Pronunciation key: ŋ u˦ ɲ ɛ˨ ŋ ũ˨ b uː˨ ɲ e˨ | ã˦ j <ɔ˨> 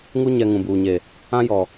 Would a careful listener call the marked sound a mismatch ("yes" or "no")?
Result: no